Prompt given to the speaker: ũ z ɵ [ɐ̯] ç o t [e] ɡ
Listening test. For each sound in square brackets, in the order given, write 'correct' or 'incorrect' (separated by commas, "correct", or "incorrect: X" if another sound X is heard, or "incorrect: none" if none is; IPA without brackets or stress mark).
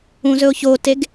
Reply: incorrect: o̯, correct